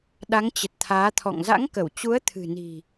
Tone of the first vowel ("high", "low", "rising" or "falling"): rising